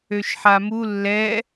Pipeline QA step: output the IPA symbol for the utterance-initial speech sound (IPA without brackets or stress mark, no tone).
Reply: ø